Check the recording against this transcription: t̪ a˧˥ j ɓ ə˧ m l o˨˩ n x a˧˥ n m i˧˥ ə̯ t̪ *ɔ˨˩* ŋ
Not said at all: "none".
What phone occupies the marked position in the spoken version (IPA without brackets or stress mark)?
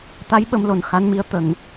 ə˨˩